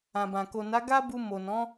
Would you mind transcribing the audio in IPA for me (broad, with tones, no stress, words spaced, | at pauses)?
ã˨bã˨ ko˨na˨˦ ɡa˦bu˧ mo˨nɔ̃˨˦